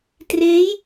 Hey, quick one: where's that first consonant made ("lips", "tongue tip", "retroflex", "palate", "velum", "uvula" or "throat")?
tongue tip